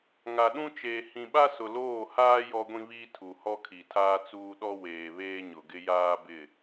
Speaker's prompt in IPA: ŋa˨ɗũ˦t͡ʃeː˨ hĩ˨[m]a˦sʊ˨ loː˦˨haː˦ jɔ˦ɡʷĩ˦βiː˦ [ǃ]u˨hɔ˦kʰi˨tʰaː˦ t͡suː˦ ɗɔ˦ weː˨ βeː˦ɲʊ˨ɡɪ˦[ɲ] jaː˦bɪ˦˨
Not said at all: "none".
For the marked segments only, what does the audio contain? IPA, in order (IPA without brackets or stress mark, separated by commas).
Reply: ɓ, tʰ, none